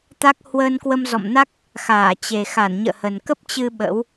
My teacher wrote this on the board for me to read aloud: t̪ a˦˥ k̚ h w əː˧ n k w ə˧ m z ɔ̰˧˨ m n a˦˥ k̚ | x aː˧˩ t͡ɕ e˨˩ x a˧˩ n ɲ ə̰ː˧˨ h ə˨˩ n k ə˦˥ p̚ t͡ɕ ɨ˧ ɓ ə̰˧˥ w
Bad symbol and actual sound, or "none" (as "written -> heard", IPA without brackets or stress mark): none